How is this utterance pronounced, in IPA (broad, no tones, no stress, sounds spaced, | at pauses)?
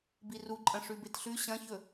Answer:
b i r u ǃʼ ɐ̃ ʂ ʉ b e t ɬ ʉ ɕ ɐ̃ ç ɵ